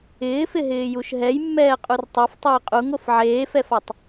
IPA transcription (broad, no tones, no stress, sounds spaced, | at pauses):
ɪː f ɪ ɦ ɪː j u ʃ ɦ ɛ j mː ɛː qʼ u r tˤ a f tˤ ɪː qʼ u ŋ o f ʕ eː f ɛ f a tˤ